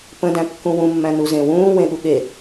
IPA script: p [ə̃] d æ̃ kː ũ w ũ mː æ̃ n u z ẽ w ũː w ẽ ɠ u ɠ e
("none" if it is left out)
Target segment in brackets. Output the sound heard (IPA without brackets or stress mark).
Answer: ə̃